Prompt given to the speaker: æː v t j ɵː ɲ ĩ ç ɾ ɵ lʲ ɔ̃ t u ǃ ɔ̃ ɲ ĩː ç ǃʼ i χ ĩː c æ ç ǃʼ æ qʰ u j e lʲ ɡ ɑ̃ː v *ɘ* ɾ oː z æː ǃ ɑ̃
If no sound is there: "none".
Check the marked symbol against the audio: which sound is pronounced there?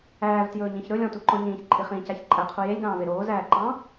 e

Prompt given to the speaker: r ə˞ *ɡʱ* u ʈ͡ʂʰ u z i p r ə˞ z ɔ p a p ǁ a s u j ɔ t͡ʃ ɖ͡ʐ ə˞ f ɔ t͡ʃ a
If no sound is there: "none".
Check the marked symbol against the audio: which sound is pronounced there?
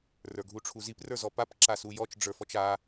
ɡʱ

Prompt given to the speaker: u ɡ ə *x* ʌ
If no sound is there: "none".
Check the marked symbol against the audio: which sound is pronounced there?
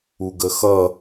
x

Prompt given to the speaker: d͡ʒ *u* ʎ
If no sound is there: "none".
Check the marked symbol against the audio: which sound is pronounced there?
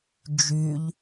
y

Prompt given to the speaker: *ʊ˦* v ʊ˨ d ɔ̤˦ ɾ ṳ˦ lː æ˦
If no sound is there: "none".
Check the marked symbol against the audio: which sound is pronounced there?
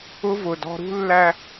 ʊ˦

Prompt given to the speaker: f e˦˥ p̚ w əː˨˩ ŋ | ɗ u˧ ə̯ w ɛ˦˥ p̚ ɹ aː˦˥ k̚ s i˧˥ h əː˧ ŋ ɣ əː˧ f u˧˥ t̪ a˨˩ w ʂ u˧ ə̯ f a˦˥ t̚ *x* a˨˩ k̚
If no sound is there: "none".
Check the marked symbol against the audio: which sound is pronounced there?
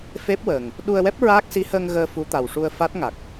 ŋ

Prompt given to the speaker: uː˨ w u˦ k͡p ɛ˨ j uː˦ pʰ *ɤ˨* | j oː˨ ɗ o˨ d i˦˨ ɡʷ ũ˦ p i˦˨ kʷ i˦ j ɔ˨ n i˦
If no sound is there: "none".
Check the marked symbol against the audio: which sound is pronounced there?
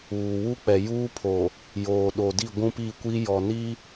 o˨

